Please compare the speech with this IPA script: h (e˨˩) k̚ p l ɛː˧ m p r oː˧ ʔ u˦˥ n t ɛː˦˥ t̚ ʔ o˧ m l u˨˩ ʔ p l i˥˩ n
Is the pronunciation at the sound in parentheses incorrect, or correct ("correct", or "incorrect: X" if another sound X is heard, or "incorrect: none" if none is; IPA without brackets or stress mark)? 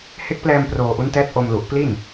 incorrect: e˦˥